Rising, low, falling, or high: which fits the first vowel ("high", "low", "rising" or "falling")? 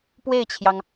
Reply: falling